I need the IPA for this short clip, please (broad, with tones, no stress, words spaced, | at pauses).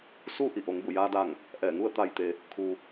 suː˥˨ʔi˧˩ ʔo˩˧ŋbu˧˩jaː˧da˧˩ŋ | ʔɛː˧˩ŋu˥˨ə̯ t̪a˧˩jt̪e˩ | kʰu˩